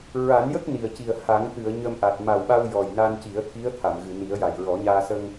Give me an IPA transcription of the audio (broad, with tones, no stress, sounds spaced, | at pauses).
ɹ a˨˩˦ n j ə˦˥ k̚ n i˨˩ ə̯ c i˨˩ ə̯ h a˨˩˦ ŋ t̪ ɨ˨˩˨ ə̯ ɲ ə˧ m ʔ a˨˩ t̚ m a˨˩ w ɓ a˧ w j ɔ˨˩ j n a˧ n c i˨˩˦ ə̯ t̪ʰ i˧˥ ə̯ t̪ʰ a˨˩˨ m ɣ ɨ˨˩˨ n i˨˩˦ ə̯ j a˨˩ j ɹ ɔ˨˩˦ ɲ aː˧ s ə˧ ŋ